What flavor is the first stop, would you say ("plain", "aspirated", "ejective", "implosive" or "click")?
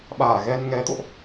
implosive